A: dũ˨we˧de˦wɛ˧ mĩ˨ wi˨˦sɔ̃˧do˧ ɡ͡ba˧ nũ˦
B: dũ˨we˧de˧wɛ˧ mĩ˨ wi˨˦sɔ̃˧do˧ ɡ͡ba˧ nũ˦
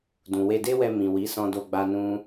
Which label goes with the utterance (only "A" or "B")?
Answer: A